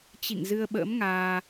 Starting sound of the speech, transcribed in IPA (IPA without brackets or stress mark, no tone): t͡ɕ